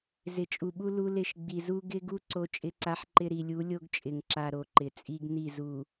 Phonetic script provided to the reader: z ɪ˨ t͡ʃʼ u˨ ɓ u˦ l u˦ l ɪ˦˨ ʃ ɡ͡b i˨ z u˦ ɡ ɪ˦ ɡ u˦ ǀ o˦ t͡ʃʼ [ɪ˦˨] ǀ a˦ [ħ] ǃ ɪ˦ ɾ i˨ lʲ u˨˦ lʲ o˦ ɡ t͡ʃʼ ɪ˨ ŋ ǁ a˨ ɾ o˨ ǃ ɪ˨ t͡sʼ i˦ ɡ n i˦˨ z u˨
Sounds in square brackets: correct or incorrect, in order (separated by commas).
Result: incorrect, correct